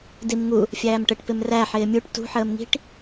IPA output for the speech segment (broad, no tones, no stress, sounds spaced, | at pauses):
d i m ŋ u | fʲ æː m ʈ ə ʈ p ɪ m r æ ħ ɪː mʲ u ʈ t ṳ ħ əː m ŋ i̤ ʈ